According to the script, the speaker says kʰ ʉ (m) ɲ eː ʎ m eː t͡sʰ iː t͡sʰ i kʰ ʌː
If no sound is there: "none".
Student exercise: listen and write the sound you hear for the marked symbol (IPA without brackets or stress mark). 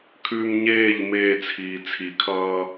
m